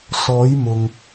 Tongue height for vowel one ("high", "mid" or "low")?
mid